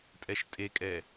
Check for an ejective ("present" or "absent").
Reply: present